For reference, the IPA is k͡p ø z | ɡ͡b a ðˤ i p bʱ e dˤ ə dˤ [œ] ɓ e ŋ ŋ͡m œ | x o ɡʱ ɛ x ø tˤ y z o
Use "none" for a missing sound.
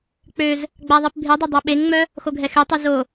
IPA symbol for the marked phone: œ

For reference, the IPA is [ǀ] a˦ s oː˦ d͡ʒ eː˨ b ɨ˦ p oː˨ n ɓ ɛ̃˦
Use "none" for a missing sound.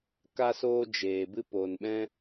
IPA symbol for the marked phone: k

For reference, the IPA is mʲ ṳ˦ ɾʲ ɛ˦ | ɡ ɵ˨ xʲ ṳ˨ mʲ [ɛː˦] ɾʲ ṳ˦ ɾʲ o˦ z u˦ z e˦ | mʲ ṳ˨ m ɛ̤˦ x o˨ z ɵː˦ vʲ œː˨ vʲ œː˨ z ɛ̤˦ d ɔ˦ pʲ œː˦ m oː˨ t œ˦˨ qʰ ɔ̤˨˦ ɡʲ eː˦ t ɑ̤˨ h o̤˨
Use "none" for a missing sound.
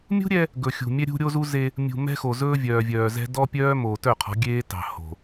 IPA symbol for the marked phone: ɛ˦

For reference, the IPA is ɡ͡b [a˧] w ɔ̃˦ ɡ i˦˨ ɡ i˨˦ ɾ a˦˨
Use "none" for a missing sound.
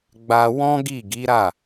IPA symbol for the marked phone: a˧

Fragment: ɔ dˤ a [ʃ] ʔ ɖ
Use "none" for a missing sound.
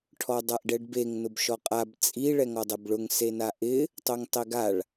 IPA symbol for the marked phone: none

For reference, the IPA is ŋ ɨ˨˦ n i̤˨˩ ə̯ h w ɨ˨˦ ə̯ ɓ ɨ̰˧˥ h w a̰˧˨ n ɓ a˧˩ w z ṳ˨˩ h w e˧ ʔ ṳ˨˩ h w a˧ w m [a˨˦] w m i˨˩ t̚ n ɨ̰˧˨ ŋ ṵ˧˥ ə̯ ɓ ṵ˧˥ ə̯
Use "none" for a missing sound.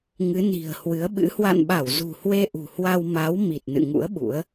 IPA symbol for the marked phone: a˨˦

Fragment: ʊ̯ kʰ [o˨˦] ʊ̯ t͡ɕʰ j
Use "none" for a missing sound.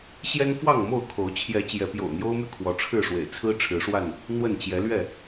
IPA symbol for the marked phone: o˨˦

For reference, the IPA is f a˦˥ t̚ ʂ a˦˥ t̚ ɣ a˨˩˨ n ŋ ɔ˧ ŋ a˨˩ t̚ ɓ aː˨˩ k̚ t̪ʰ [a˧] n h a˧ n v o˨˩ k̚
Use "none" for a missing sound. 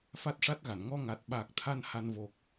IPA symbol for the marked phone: a˧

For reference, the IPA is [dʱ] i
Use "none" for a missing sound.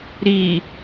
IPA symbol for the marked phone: ɾ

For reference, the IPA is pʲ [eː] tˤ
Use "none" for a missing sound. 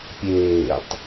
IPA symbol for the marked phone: eː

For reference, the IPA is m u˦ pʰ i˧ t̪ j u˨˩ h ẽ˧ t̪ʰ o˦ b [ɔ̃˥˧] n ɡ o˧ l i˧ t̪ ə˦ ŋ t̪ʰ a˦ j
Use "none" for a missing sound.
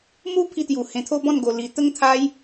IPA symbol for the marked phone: ɔ̃˥˧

